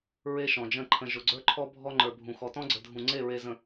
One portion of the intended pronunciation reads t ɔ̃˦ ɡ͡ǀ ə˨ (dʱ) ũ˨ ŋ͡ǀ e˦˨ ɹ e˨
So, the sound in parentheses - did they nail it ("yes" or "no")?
yes